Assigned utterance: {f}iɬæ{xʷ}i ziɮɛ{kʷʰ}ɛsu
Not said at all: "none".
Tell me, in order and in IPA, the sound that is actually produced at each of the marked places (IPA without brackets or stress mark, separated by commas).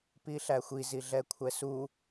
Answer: p, xʷ, kʷʰ